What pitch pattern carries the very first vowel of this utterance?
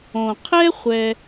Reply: low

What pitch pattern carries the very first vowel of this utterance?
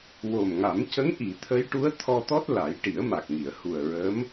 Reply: low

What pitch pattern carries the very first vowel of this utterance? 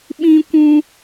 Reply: high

